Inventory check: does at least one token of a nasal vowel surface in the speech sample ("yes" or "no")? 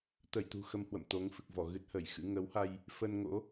no